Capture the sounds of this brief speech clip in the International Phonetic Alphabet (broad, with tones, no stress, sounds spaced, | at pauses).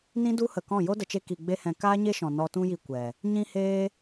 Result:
n ĩ˦ d u˦ h ə˨ k ɔ̃˦˨ j o˦ d ə˨ t͡ʃ e˧ k i˨ ɡ͡b e˧ h ɛ̃˨ k aː˦ ɲ e˦ ʃ ɔ̃˨ n ɔ˧ t ũ˦ j i˧ kʷ ɛ˨ | ɲ ĩ˧ h eː˧